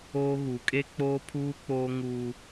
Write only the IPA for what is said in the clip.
oː˦ ɣ u˨˦ kʼ e˦ k͡p oː˦ pʰ uː˦ k͡p oː˦ ŋ uː˦

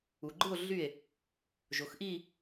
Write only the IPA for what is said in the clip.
u˩ ɡ͡ǃ ɯ˥˩ o̯ ɮ y˥˩ e̯ | ʒ o˩˧ x ʔ i˥˧

